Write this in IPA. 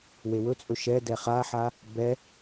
w e w ɵ t͡sʼ ɵ ʃ ɛ d ɛ χ a ħ a | b ɛ

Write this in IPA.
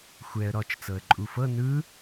xʷ ɛ ə̯ ɾ ɔ t͡ʃ t͡s ɤ ə̯ ǃʼ u f ɤ n ɯ

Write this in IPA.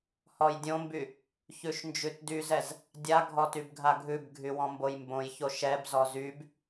h ɔ j dʲ õ m b y | ç ʉ ʃ n d͡ʒ ʉ t d y z ɛ z | dʲ a ɡʱ ɔ t y b ɡʱ a ɡʱ ʉ b ɡʱ y w ɔ̃ m b o j m b õ j ç o ʃ ɛ b z ɔ z y b

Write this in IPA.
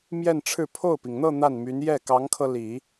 m j ɛ˥˧ n ʈ͡ʂʰ ɻ̩˥˧ pʰ o˥˩ ʊ̯ p i˩ ŋ n̪ ɤ˥˧ n̪ a˥˩ n m y˧˥ n j ɛ˥˩ k ɑ˧˥ ŋ kʰ ɤ˧ l i˨˩˦

